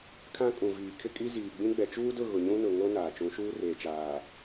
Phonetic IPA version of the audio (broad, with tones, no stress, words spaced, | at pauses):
kʰã˦kʼũ˨viː˨ kʰɪ˦kʼi˦ziː˨ɡ͡bĩ˦ ɡ͡bɛ˨t͡ʃuː˦dʊ˦˨ ɣʊ˨ɲũ˦nʊ˨ŋo˦ naː˨t͡ʃũ˨˦ʃuː˦reː˨ t͡ʃaː˨